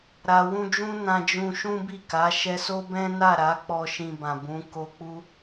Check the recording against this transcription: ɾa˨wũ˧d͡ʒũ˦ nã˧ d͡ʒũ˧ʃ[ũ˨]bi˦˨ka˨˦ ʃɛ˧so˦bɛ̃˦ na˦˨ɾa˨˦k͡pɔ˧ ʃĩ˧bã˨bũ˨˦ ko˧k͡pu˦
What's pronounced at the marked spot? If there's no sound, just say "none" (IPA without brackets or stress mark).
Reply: ũ˦